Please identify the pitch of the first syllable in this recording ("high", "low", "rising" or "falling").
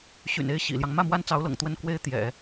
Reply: low